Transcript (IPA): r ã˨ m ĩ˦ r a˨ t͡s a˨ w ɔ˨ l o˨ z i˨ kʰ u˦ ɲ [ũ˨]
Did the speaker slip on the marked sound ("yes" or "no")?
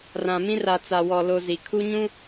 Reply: yes